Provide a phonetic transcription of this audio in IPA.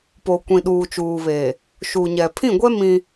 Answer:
p o˨ kʷ ĩ˨ ɗ uː˨ t͡ʃ uː˨ β e˨ | ʃ u˨ ɲ ɛ˨ pʰ ĩ˦˨ ɡʷ ɛ˦ m ĩ˦

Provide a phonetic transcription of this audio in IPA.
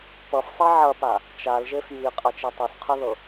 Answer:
p ʌ f sˤ i ʕ ɐ p a | t͡ʃ a l ʒ e f j i qʼ ɐ t͡ʃ i tˤ ɤ s qʰ ɤ ð ɤ

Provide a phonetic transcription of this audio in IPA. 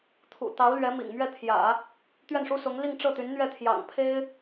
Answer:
t̪ʰ ṵ˨˩ t̪ ɑ˧˥ ʊ̯ l ɥ ɛ˧˥ m ḭ˨˩ ŋ m ɥ ɛ˥˩ t̪ʰ j ä̰˨˩˦ | t̪ ɥ ɛ˥˩ n ʂ u˥ s ʊ˧˥ ŋ l i˥˧ ŋ ʈ͡ʂ ɤ˥˩ t̪ y˧˥ n n̪ ɥ ɛ˥˩ t̪ʰ j ɑ̰˨˩ ŋ pʰ e˥ ɪ̯

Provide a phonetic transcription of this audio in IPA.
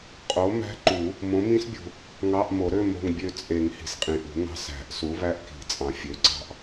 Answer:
qʼ o˨˥ m æ̤˦˥ ǃ u˨˩˦ | m õ˨˥ m ĩ˦˥ s bʲ ṳ˨ | ŋ ɑ˧˥˧ ʔ m o˨˩˦ ɾ ø˧˥˧ m o̤˦˨ ŋ bʲ ø˦˨ t͡sʼ e˨˩˦ ŋ h i̤˨ s qʼ ĩ˨ ʔ ṳ˨˩˦ ŋ ɑ̤˧˥˧ s æ̤˨˩˦ ʔ s u˨˥ β æ˦˥ ʔ k i̤˨˩˦ t͡sʼ ɑ̃˨ fʲ ø˨˥ ǀ ɑ̤˦˨ ʔ

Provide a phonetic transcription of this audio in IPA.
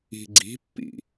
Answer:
i̤ ɡ͡ǀ i̤ pː ḭ

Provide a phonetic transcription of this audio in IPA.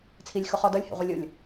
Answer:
t͡sʰ i lʲ x ʊ χ ɔ d ʌ lʲ h ḛ ʁʷ i lʲ ʊ lʲ

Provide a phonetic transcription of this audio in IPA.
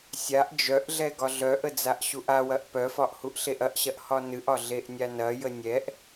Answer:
sʲ a ʔ d͡ʒ œ ʔ ɮ ɛ ɡ ɒ ɮ œ ʔ ə d͡z a ʔ ɕ u ʔ a w ɐ ʔ p œ f ɒ ʔ h u ʔ ɬ e ʔ ɐ ʔ ɕ ɐ ʔ h ɒ n ɨ ʔ ɒ ɮ e ʔ nʲ a n ɐ j ə nʲ ɛ ʔ

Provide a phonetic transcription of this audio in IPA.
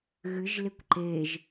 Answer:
ɣ ɨ ʒ l e kʷ ǃ e ʒ

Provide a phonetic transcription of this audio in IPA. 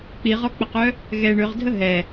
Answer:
k͡p i ʁ ɔ k͡p ə q œ | ɣ ɛ ɳ ø ʁ dʱ ə ɦ ɛ

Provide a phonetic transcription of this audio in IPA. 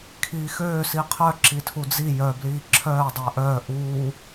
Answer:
kʰ iː x øː s i qʰ œ ǁ i tʰ u d͡z i j œ b l iː ǁʰ œː dˤ əː ʔ œː ʔ uː

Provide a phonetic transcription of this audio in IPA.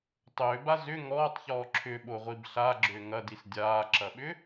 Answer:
tˤ ʏː b a z ʏ ŋ ɔː tˤ ç ɔː ǁʰ ʏ ɓ o ʁʷ i b ɬ a ɡ͡ǁ ʏː ŋ ɐ d i s dʲ aː ǁ ɐ ɓ ʏ

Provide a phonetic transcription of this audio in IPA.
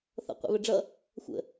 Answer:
θ ɔ̰ qʷ ɛ̰ β ə ɖ͡ʐ ʌ | xʷ ə̰

